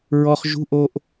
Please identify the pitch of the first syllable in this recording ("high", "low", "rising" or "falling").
low